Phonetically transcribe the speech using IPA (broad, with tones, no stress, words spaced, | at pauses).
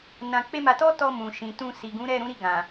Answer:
nã˧k͡pe˦ma˧ tɔ˦tɔ˧ mũ˨ ʃĩ˨tũ˧ si˨ɡũ˨˦ ɾɛ˦˨ɾũ˨˦ɾi˦˨ ɡã˨